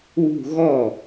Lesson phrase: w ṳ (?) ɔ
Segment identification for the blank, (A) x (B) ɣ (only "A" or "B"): B